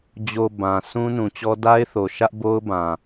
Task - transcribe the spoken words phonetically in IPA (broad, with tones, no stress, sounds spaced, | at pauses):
d͡ʑ o˨ b ã˨ sʰ ũ˦ n ũ˨ t͡ɕ ɔ˦ d a˦ ɪ̯ θ o˨ ʃ ä˦ ʔ b o˦ ʊ̯ b ã˨